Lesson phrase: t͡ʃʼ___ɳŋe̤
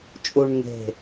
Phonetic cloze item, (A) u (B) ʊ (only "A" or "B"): A